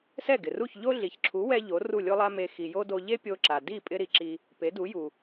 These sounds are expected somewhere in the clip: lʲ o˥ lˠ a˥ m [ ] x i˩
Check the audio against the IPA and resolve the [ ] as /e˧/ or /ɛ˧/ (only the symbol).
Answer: e˧